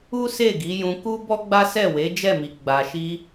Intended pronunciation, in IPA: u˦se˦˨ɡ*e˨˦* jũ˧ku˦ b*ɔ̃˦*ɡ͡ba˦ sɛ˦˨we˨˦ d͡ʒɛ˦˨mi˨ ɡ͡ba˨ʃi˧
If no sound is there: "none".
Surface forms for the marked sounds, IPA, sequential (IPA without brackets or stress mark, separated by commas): i˨˦, ɔ˦